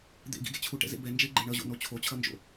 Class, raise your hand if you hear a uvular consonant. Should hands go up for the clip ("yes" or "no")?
no